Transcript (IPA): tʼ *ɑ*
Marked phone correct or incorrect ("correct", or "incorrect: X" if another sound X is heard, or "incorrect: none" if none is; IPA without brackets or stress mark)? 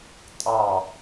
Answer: correct